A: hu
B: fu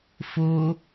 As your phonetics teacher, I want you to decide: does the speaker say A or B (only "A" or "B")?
B